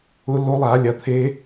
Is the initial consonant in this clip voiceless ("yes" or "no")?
no